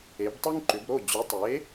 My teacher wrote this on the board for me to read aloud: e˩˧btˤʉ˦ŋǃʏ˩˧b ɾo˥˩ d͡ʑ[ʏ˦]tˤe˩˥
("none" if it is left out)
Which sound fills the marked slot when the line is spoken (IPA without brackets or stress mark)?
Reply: ʏ˩˥